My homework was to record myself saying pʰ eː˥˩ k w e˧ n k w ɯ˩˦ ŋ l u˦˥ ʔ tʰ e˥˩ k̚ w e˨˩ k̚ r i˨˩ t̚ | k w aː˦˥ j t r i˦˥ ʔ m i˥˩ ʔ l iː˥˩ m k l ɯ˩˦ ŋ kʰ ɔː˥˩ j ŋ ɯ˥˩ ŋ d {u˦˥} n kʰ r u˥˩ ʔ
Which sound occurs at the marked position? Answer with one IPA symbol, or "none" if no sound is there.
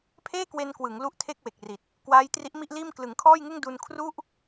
u˧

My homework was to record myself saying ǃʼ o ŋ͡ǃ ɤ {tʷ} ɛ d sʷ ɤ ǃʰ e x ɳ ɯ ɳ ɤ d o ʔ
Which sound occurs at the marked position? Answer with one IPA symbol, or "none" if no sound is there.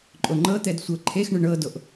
t̪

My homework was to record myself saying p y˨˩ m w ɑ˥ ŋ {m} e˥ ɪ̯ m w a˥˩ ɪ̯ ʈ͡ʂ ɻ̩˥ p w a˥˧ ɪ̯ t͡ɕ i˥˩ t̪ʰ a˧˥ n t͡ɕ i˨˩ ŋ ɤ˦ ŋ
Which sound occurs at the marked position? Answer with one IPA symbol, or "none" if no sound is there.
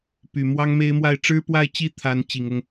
m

